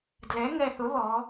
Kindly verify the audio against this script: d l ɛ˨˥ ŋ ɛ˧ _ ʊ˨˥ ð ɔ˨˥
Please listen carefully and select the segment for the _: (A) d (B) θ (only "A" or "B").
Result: B